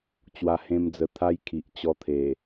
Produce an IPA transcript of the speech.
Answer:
t͡ɕ w a˧ h ẽ˦ m d͡z ə˧ t̪ʰ a˦ j kʰ i˨ ʔ t͡ɕ ɔ˧ t̪ʰ e˨˩

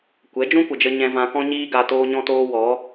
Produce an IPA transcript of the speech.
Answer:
kʷ ɛ˨˦ d͡ʒ ũ˦ kʷ ə˨ d͡ʒ ə˧ ɲ ɛ̃˧ v ã˧ k ɔ̃˦ ɲ iː˦ ɡ a˧ t oː˦ ɲ ɔ̃˦ t oː˦ w ɔ˨˦

